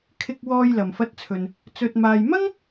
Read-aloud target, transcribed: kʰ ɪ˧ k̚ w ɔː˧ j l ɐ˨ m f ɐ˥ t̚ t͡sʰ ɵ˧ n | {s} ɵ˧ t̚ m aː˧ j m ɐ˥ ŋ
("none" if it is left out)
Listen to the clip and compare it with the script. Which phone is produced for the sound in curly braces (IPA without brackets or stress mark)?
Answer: t͡s